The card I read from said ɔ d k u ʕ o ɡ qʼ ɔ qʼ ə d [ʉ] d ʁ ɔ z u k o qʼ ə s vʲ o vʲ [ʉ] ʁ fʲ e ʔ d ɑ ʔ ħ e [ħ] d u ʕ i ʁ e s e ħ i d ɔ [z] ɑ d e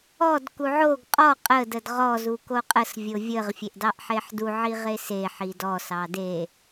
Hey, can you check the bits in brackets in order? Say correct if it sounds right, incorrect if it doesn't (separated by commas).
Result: incorrect, incorrect, correct, incorrect